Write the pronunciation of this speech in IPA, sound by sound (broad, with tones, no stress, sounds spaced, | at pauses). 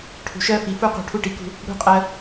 ʈʰ ṳ˨ ʃ ɜ˦ f i˨ f u˦ q ṳ˨ ʈʰ u˦ ʈ i˨ k ṳ˦ | ɽ ṳ˦ qʼ ɜ˦